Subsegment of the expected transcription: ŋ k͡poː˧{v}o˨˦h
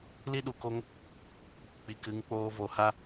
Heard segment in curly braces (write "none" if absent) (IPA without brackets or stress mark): v